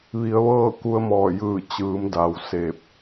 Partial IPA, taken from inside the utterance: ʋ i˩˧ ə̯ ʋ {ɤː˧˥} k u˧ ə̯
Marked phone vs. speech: incorrect: ɤː˥˨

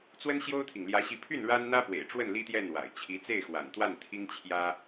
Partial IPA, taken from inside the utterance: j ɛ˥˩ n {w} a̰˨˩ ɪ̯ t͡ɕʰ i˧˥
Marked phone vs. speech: correct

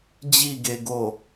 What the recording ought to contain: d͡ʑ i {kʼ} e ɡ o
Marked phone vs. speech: incorrect: ɡ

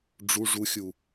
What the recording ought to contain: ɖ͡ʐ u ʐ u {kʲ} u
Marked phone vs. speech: incorrect: xʲ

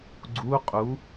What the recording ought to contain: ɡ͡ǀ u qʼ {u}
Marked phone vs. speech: correct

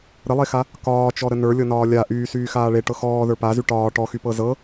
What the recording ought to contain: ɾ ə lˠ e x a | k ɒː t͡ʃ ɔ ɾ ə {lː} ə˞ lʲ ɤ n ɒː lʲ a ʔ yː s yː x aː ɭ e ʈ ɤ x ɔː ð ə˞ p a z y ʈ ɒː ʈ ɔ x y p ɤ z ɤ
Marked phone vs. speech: incorrect: n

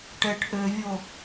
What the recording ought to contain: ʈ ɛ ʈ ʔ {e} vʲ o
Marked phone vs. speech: incorrect: ø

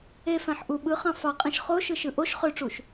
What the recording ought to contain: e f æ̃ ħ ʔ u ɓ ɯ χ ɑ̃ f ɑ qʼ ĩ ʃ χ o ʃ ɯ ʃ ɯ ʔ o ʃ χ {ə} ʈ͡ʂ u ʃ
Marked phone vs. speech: incorrect: ø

